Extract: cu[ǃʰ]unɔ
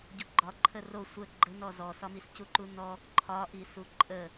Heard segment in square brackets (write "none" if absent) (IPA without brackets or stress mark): ǃ